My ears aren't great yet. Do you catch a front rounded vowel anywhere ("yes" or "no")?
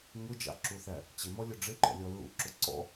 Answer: no